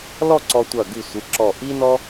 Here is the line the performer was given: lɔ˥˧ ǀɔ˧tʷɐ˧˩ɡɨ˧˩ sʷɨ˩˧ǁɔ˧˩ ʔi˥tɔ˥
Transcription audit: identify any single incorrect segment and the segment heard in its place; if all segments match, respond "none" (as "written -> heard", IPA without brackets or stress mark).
t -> n